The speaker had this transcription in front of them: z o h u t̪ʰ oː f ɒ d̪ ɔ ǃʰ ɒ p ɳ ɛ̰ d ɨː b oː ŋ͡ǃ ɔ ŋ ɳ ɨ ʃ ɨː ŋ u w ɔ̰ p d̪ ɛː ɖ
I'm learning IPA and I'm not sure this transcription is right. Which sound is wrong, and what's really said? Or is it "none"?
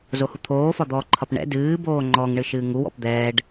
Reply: none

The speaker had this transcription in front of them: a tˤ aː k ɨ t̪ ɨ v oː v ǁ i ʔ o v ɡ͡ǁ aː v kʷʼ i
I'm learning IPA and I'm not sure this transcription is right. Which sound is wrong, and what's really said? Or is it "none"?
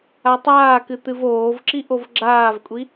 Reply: none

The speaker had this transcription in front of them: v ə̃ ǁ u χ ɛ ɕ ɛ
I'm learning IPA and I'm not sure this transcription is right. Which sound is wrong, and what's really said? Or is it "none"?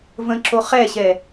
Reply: u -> o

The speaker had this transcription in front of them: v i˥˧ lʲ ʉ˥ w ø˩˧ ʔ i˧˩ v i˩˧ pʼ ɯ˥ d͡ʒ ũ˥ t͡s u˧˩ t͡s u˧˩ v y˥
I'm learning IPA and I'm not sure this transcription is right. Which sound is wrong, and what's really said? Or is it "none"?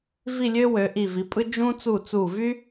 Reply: ʉ˥ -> ø˥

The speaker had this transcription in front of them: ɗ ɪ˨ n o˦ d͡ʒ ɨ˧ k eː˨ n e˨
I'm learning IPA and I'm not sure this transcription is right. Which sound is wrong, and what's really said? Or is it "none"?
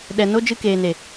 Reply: ɪ˨ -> ɛ˨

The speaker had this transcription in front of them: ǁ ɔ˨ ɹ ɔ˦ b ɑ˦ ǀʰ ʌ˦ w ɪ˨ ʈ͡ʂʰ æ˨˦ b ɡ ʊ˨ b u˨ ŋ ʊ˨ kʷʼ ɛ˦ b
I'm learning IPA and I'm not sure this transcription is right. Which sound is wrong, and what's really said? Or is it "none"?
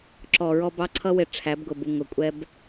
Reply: none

